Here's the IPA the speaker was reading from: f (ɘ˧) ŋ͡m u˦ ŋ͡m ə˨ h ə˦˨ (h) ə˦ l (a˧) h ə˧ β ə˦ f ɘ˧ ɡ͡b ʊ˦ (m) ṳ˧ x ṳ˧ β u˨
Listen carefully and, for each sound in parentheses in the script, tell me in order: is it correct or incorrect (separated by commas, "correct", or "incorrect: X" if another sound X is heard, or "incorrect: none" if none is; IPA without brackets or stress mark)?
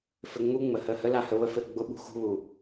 correct, correct, correct, incorrect: ɓ